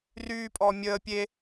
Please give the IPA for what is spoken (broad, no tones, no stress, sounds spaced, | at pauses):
r yː pʼ ɔː mʲ əː pʲ e